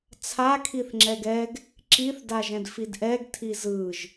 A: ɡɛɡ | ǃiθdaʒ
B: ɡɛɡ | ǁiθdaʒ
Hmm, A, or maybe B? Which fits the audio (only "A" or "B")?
B